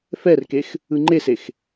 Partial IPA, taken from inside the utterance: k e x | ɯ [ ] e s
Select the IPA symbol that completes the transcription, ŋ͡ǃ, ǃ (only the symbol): ŋ͡ǃ